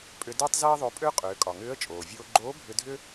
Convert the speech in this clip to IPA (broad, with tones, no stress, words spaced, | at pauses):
pʼʏ˧dʏː˥tˤ ze˥ə̯ðˤo˧pʼø˥ qʼʏː˩˧kʼɒ˩ŋʏː˧˥ə̯ t͡ʃʼoː˩vʲoː˧ɡ͡ǃoː˧˥ bʱʏ˧dʱʏ˥